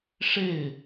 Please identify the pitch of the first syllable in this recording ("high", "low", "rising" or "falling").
falling